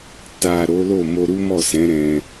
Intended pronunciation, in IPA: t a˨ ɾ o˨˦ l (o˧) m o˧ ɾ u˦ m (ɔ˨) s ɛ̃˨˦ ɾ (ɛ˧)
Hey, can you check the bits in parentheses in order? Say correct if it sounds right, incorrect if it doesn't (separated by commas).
incorrect, incorrect, incorrect